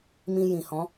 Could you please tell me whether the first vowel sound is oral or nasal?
nasal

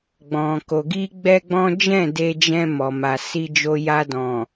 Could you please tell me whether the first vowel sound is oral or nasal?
nasal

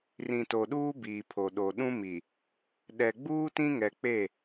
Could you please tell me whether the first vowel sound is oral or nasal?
nasal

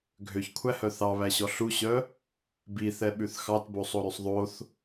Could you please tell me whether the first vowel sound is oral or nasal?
oral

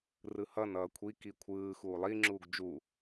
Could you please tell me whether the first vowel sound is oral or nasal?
oral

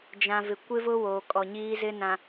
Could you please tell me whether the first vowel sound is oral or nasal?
nasal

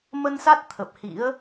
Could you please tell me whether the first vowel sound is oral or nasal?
oral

